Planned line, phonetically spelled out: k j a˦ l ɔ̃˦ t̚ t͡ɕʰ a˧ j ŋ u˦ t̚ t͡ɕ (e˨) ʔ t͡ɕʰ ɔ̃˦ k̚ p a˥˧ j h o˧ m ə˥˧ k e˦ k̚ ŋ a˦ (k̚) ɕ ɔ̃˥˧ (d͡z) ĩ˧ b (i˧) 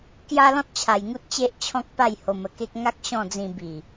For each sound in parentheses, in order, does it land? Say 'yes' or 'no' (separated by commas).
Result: no, yes, yes, no